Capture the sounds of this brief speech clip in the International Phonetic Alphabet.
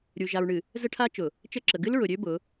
ɾʲu˨ ʒa˨ɹɳɨ˨ | zə˦ʈʰa˦t͡ʃʊ˨ | t͡ʃə˦˨ǁə˨ ɡɨ˦lɹʊ˨ɾʲø˦ bʊ˨˦

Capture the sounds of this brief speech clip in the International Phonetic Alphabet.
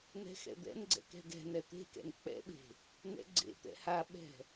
nɛ̤xɛ̰d̪ɛ̰nɡ͡ǀɛ̰k ɛ̤ɡɛ̤nɛ t̪e̤kɛ̰n k͡pɛ̰ɓe̤ | nɛ̰ɡ͡ǀḛt̪ɛ̰ haɓɛ̤

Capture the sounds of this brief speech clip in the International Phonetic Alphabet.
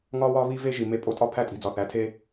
ŋɒː˦wɒː˦ βi˦ve˦ʒi˨ me˦pʼo˦ tʼɒ˦ pʰæ˦˨tʼi̤˨d͡zɒ˨ θæ˨˦tʰeː˦

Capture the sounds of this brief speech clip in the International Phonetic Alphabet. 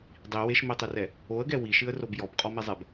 dˤi weʃmitˤerɛ | oə̯ɡɛ wiʃɨə̯rob jɔbqʼɔmezˤɛb

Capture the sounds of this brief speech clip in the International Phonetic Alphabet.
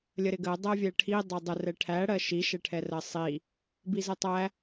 lʲəɾɪɡɜ dˤɜvʲɛʈʰi dˤɜdˤə rɛʈʰæ ɽɜʃi ʃɛʈʰɛrɜsˤi | bizətˤæ

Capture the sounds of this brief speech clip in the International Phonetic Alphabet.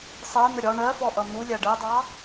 sˤɜn̪ə ɾʲɒ ɳɜfɔʔʌ n̪ulʲæ ɖɜdˤɑ

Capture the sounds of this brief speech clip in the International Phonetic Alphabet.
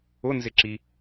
ʊnzɪǁi

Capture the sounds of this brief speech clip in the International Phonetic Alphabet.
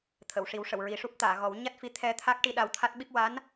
t̪ʰə˨˩˨wʂi˨˩˦wʂə˨˩˨w ɹi˨˩ʂu˦˥p̚t̪aː˨˩˨ɣɔ˨˩˦w ɲa˦˥t̚fi˧˥ t̪ʰɛ˧t̪ʰa˦˥k̚ʈi˧ ɗa˧wt̪ʰa˦˥t̚ɓi˦˥p̚ wa˧˥n

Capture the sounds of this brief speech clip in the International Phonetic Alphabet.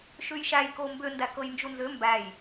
ʃʉjʃæj kombʏ ndækɤjnd͡ʒunzʏ mbæj

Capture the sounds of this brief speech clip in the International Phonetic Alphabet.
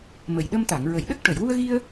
mə˨˩jɗə˧mt̪a˨˩˨ŋ ɹə˨˩˨jɗə˦˥k̚ʈə˨˩˨j wu˧ə̯ɣi˧ə̯

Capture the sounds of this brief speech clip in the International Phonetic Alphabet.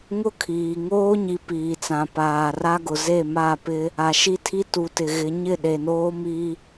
ŋʊ˦kʰiː˨ ŋoː˦ɲi˨ piː˨t͡sã˨ paː˨ra˦ɡʊ˨ ze˦˨ma˦˨pɪ˦ | a˨ʃi˦tʰi˦ tu˨tɪ˨ɣɪ˨˦ ɲɪ˦˨ ɗe˨noː˦ mi˦

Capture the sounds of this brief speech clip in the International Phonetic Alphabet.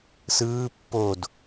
sɯː pːod

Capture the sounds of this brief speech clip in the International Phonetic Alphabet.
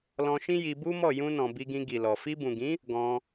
lɔ̃˧ʃĩ˦ ji˧ bu˦mɔ˦˨ jũ˧nɔ̃˨ bi˧ɡĩ˧ɡi˨lɔ˨ fi˧bũ˨ɡĩ˨˦ | ɡɔ̃˧

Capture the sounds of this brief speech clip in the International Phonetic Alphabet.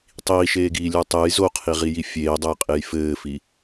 tˤiːʃeːɡiːlʲə˞ tˤej zoqʰiʁiji fʲeːdˤɛjqʼej fɘːfi

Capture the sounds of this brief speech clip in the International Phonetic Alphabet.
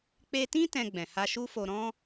k͡pe˧tĩ˦ tɛ̃˧ɡ͡bɛ̃˨ ha˧ʃu˦fo˧ ɾɔ̃˦

